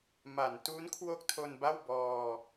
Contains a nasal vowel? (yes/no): no